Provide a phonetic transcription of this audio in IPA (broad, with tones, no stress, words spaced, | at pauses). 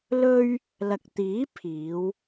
lɵ˥ɥ | lɐ˨k̚t̪iː˨˥ pʰiː˨˧w